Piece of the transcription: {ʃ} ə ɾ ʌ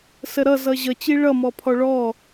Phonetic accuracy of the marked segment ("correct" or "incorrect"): incorrect